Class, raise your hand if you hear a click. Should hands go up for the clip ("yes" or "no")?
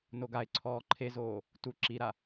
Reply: yes